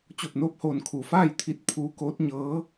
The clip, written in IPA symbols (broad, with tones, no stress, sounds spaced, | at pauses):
t͡ɕ o˧˩ p̚ n oː˥˨ p̚ h oː˧˩ n kʰ u˩ f aː˥˨ j t̪ʰ i˧˥ t̚ pʰ uː˧˥ k oː˧˥ t̚ ɲ ɤː˧˥